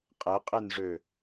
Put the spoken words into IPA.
qʼɛqʼenʐø

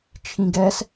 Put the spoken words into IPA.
t͡ʃʰĩɡɛs

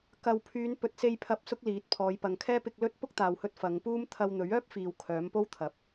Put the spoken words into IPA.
kɐ˨wpʰyː˨˧n pɵ˨t̚se˧jpʰɐ˨˥p̚ sʊ˥k̚liː˨˥t̚ pʰɔː˨˧jpɐ˨ŋkʰɛː˥ pɪ˧k̚lɵ˥t̚ pʊ˥k̚t̪aː˨whɵ˧t̚ fɐ˨˧ŋpuː˥m t̪ʰɐ˧wn̪ɵ˨˥ɥœː˥p̚fiː˨w kʰœː˨˥mpo˥wt̪ʰɐ˨˥p̚

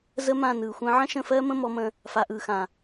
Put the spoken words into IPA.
zə˦mã˦˨ nɯː˨xʷə̃ː˦ ʕə̃˦ʃə̃˦˨fɜː˦mə̃˦ mɔ˦mə̃˦ | fa˨ʔɯː˨xã˨

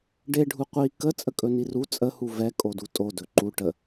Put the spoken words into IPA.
ɖeɖʱu qʷi kət͡sʼə kʼɵniru t͡sʼəhu vɛ kʼodutʼo dɵǃu ʈə

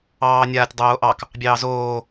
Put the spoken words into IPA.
ɑːnʲaːtʲdˤoːʔɑk | bʲɑːzoː

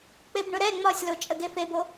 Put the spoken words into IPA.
k͡pebɳʊɾɛ ŋ͡mɒsʲlo t͡ʃʼəɡefebo

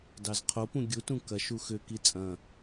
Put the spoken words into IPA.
dɑzqʰopũ ɡʲutũ kɐʃ uxʏki t͡sʼɐ̃

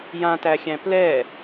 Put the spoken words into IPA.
jãtæxʲæ̃ plɛ

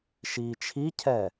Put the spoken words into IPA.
ʃiːt͡ʃʰicʰɛ

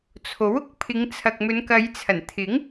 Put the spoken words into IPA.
t͡sʰo˨˥wʊ˥k̚pʰɪ˨˧ŋ t͡sʰɐ˨k̚mɵ˨˧nkɐ˨˧jt͡sʰɐ˨˩n t̪ʰɪ˨˥ŋ

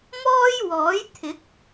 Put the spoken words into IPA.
mɔː˥jwɔː˨˥jt̪ʰɪ˨˥k̚

